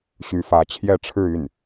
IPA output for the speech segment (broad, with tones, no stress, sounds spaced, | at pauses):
ɕ y˧˥ f ä˧˥ t͡ɕʰ j ɛ˥˧ ʈ͡ʂʰ ɻ̩˥˧ y˥˩ n